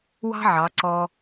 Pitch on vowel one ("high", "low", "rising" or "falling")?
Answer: high